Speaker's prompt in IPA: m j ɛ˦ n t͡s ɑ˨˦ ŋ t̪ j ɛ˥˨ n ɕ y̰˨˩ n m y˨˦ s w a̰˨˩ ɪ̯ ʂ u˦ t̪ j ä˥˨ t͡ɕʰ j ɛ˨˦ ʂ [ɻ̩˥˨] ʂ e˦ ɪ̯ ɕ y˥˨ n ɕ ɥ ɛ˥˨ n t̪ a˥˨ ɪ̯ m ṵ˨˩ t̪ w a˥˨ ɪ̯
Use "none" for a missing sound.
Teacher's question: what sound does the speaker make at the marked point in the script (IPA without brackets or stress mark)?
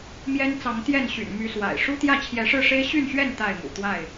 ɻ̩˥˨